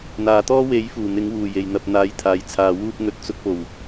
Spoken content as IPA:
n̪ aː˨ t̪ ɔː˥ w e˨˥ j f uː˨˩ n̪ ɪ˨˥ ŋ w uː˨˩ j e˨˩ j n̪ ɐ˨ p̚ n̪ aː˨˥ j t̪ʰ aː˨ j t͡sʰ aː˨ w uː˧ p̚ ŋ ɵ˨ t̚ t͡s ʊ˨˥ k̚ p o˨˩ w

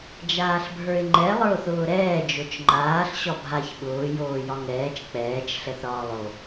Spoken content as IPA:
d͡ʒ aː ɬ bʱ ə˞ ɪ̯ ŋ͡ǃ ɛ lˠ ə˞ ʊ̯ θ ʊː ɾ ɛː d͡ʒ o t͡ʃ ŋ͡ǃ aː ɬ ɕ ɒ bʱ a ç ɓ ʊː j oː j ɒ ŋ ɛː t͡ʃ k͡p ɛː t͡ʃ ɬ ɛ θ ɾ ɒː lˠ o

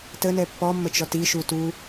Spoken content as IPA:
t ə n ɛ pː ɔ mː ə t͡ʃ ɔ t i ʃ u t u

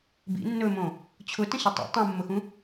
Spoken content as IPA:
b ḭ nː ɵ m õ | t͡ɕʰ ʊ t ə̃ ɕ ə tˤ ḭ tˤ ũ mː ʊ x ũ

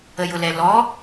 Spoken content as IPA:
ə j ʊ l ɛ l ɔ

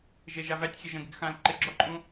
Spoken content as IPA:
ʒ e ʒ a v æ tʲ xʲ e ʒ ə̃ ɡ ɪ ɡ x ã l ǃ ɪ ɡ͡ǁ ɔ ǃʼ ũ

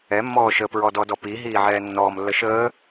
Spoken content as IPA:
ɛ mː ɔː ʃ ə p ɹ ɔ d ɔ d ɔ p i ɦ iː ʕ ɛː nː ɔː m lː ə ʃ əː

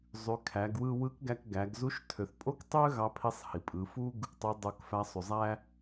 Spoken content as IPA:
zˤ y˩˧ kʰ æ˩˧ ɡ w ɯ˧ w ɯ˧˥ k ɡ æ˧ k ɡ æ˩˧ ɡ z u˧˥ ʃ tʰ ø˩˧ θ pʼ o˥ k tˤ ø˥ ɣ ɑ˧˥ pʰ i˧˥ sˤ h i˩ pʼ ɯ˩˧ f u˥ ɡ | tˤ y˧˥ dˤ o˧˥ k f æ˧˥ sˤ y˩ zˤ æ˥

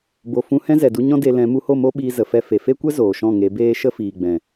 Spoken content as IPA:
b o˨ f ũ˧ h ɛ̃˦ z ɛ˨ d u˧ ɲ ɔ̃˦ d e˧ l ɛ̃˨˦ m u˧ h o˦˨ m o˦ ɓ iː˧ z ə˨ f ɛ˧ f e˨ f e˦ kʷ ɛ˦ z oː˨ ʃ ɔ̃˦˨ ŋ e˨˦ b eː˦ ʃ ə˦ f iː˨ ɡ͡b ɛ̃˨

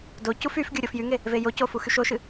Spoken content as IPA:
d o c u f y f ɡʲ u ɾʲ o f j y ŋ e | v e j o c o f u x y ʃ o ʃ ɨ

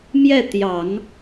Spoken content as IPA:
m j ɛ˥˩ t̪ j ɑ˨˩˦ ŋ

